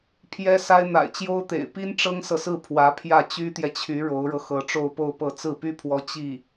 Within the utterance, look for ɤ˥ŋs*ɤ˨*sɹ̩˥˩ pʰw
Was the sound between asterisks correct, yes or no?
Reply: yes